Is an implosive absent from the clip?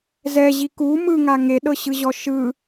no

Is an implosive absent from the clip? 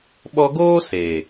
no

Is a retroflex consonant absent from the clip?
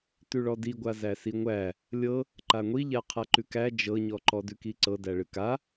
no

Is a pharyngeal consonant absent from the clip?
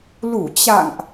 yes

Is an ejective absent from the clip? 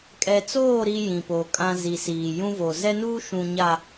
no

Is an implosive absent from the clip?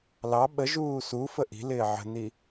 no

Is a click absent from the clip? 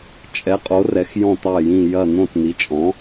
yes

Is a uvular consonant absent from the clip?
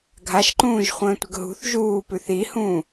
no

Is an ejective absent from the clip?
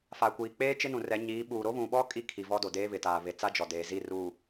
no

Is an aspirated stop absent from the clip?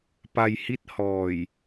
yes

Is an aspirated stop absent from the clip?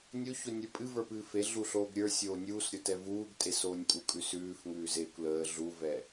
yes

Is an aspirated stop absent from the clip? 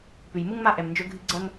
yes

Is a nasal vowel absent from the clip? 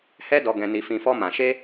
no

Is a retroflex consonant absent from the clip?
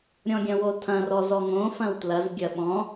yes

